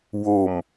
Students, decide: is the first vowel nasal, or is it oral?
oral